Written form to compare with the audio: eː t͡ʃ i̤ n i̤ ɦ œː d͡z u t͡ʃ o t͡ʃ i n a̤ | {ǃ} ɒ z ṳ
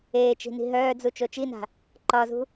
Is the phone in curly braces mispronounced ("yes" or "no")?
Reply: no